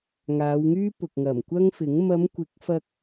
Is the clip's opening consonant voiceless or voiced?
voiced